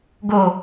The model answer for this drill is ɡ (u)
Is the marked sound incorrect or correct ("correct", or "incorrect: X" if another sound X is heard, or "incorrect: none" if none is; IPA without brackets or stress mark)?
incorrect: o